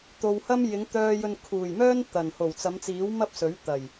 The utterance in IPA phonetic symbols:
t̪ o˨ w h ɐ˥ m j ɪ˨˥ ŋ t̪ œː˨ j ɵ˨ n kʰ uː˨˩ j m œː˥ n t̪ ɐ˨˩ n h o˨˩ w t͡s ɐ˨˧ m t͡s iː˨˥ w m ɐ˥ p̚ s ɵ˨˥ ɥ t̪ ɐ˨˩ j

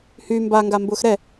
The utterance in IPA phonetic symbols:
h y m b a ŋ ɡ a m b ʊː x ɾ ɛ

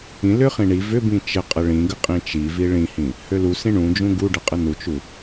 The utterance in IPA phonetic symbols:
ĩ l ʏ χ ĩ ɳ i v ʏ b ĩ t͡ʃ ə qʼ ə ɭ ĩ ɡ ə qʼ ĩ t͡ʃ i v i ɭ ĩ h ĩ | h ø l u s ĩ ɳ ũ d͡ʒ ũ ɡ u ɖ ə qʼ ə n u t͡ʃ u

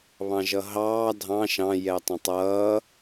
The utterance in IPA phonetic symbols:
β ɑ̃ ʒ ʌ ɦ ɑː dʱ ɑ̃ ʃ ɑ̃ j ɛ tˤ ə̃ tˤ ʌː

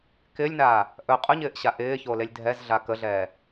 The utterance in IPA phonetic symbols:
k ɪ lʲ n aː | ʔ ɵ qʼ ɵ ɲ ɪː ʔ ɕ a ʔ ɪː ç o l e lʲ dʱ ɛ z ɮ a k ə ɮ ɛː

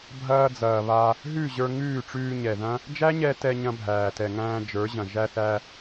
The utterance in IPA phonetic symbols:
bʱ ɐː˧ d͡z ɐː˨ β a˧ | ɦ ʉ˦˨ ʑ ə˞˧ ŋ ʉː˦˨ ʈ͡ʂ ʉː˧ ɲ ɛ˨ ð ɐ̃˦ | d͡ʒ æ˦ ɲ ɛ˧ t ɛ˧ ɲ ɐ̃˧ bʱ æː˨ t ɛ˨ ŋ æ̃ː˧ d͡ʒ ə˞˨˦ ʑ ɐ̃˨ ʒ æ˦ θ æ˦

